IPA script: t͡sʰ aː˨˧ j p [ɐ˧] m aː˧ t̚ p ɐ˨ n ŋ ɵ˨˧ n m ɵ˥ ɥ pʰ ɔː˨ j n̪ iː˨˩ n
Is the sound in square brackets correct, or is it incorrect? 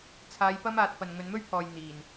incorrect